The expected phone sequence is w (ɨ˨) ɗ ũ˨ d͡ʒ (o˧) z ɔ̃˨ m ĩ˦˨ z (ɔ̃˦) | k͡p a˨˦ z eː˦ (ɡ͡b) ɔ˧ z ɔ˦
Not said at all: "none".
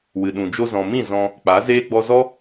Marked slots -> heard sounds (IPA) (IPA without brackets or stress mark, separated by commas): ɨ˨, o˧, ɔ̃˧, ɡ͡b